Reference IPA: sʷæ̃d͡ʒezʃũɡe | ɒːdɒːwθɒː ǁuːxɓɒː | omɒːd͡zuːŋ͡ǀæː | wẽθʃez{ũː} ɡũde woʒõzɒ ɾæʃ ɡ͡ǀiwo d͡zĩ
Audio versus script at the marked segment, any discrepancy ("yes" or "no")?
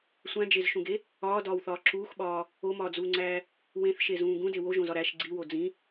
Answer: no